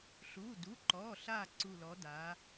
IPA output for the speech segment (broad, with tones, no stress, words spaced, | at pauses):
ɬuː˩˧˩du˩˧˩ǃɔː˩˧˩ɬaː˧˩ ǀu˧˩lɔ˨˥daː˨˥